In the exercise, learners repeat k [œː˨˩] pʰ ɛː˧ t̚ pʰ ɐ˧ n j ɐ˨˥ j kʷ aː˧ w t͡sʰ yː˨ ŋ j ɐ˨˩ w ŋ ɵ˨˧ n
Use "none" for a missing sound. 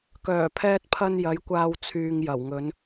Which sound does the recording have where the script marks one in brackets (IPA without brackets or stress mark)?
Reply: œː˨˩